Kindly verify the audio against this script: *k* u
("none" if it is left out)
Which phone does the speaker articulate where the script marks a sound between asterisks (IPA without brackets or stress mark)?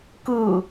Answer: k